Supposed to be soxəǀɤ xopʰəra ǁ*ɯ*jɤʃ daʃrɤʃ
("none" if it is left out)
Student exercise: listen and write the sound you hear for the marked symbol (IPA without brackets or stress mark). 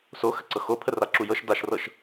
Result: u